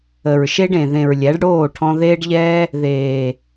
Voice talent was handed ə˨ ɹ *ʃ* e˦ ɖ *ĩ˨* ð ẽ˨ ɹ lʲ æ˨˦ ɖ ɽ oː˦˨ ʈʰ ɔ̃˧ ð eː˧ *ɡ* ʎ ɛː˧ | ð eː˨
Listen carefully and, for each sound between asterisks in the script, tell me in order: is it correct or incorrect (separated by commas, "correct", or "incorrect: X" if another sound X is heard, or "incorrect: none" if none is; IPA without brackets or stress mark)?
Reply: correct, incorrect: ẽ˨, incorrect: ɖ